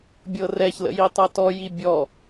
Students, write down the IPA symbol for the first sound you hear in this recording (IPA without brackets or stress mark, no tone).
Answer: bʲ